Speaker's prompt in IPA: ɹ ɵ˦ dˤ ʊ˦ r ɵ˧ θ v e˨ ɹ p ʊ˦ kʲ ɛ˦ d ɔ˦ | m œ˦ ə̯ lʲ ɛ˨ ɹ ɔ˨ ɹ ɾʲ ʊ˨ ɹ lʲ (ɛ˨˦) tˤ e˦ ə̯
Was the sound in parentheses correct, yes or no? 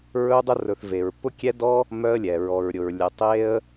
no